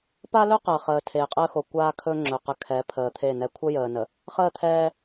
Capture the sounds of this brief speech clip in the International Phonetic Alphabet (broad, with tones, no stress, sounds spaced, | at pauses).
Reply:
p a˦ l ɵ˦ q əː˨ χ əː˨ tʰ eː˨ qʼ əː˦ x o˨ kʷ aː˦ kʰ ɵ˦ ŋ͡ǁ ɵ˨ q ə˨ kʰ ɛ˨˦ pʰ əː˨ t̪ʰ e˦˨ n ɛ˨ kʷʰ ə˦ j əː˨ n ə˨ | χ əː˦˨ t̪ʰ ɛː˦